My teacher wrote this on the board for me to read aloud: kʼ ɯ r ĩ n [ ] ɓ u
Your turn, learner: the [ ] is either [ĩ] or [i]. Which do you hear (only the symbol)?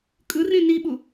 i